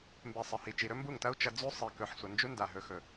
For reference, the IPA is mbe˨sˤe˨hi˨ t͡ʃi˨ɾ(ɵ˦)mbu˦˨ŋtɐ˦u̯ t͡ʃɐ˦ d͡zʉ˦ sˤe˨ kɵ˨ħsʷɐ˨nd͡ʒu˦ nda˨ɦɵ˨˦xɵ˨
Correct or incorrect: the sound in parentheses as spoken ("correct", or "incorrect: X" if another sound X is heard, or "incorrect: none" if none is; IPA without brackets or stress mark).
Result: correct